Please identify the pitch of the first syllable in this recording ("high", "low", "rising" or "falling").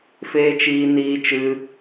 high